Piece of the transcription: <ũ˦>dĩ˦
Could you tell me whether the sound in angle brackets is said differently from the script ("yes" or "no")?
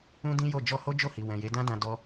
no